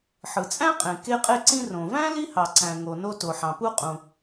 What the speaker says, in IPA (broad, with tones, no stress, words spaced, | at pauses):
ħɯ˩t͡sʼæ̃˥qʼẽ˩ ke˧qʼe˧ǀĩ˧ rõ˩væ̃˥ li˥hɑ˩ǀæ̃˩ ŋo˩no˧ to˩ħɑ̃˩pu˧ qʼũ˩